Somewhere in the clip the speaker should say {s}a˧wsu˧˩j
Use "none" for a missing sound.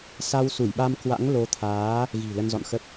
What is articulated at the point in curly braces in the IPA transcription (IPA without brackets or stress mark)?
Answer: s